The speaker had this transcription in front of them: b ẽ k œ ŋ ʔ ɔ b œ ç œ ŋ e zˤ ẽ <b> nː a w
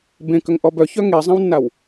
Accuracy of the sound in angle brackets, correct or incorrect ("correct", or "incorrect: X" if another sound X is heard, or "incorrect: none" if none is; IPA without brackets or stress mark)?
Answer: incorrect: w